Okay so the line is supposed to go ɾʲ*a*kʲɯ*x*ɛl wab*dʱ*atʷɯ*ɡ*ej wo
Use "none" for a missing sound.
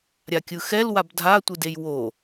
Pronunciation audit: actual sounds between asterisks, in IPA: a, x, dʱ, d

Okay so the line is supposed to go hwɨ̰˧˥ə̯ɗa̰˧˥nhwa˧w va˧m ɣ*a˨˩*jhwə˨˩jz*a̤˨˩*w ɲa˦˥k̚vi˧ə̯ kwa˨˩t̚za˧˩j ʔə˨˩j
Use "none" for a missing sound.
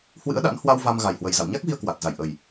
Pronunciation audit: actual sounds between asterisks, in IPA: a˨˩, a̰˧˨

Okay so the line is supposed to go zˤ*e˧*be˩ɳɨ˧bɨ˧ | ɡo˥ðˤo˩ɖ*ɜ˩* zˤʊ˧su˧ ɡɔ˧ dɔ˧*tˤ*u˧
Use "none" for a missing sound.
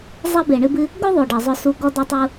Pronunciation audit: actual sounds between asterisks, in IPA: ɛ˧, ɜ˩, tˤ

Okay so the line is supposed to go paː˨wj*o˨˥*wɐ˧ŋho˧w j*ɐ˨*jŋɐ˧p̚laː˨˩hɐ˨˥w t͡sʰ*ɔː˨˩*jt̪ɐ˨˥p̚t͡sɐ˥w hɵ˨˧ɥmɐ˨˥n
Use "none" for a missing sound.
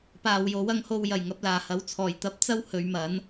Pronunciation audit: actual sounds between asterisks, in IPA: o˨˥, ɐ˨˩, ɔː˨˩

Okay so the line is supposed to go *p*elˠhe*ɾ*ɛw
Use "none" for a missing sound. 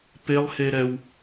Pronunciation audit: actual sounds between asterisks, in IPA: p, ɾ

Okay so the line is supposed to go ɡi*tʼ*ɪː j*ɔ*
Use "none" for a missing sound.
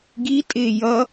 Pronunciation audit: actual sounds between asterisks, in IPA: tʼ, ʌ

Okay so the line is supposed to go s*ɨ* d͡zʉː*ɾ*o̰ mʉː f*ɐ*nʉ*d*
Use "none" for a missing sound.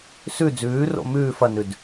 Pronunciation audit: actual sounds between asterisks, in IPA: ʉ, r, ɐ, d

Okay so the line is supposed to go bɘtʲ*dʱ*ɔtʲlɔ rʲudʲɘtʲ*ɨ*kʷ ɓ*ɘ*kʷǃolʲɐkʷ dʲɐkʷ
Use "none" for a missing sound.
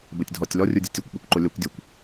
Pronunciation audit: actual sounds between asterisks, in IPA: dʱ, ɨ, ɘ

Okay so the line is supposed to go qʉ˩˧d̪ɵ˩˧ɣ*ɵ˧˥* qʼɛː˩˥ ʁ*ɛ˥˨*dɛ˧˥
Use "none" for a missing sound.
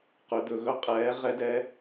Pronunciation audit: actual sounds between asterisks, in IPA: ɵ˧˥, ɛ˧˥

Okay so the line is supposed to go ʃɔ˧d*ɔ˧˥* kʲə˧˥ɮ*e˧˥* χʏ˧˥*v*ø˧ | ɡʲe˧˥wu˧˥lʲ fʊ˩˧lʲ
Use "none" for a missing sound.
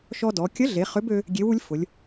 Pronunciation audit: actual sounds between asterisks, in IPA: ɔ˩˧, e˩˧, b

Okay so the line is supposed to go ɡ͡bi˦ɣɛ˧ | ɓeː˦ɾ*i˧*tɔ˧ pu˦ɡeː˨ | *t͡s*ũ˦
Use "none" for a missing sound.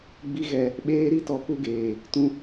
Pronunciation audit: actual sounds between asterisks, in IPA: i˦, t

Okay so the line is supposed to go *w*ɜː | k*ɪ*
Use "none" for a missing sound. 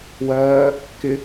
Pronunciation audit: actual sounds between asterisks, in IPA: w, ɪ

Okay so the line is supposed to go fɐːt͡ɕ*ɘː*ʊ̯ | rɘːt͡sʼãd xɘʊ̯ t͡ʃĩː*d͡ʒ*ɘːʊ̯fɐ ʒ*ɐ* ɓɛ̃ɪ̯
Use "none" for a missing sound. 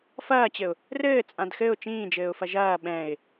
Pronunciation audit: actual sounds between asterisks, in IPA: ɘ, d͡ʒ, ɐː

